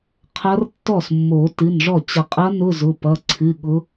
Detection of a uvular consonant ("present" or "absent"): present